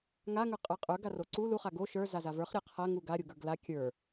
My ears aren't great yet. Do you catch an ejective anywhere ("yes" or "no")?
yes